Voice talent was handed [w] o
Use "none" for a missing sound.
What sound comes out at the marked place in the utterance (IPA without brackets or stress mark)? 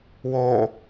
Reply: w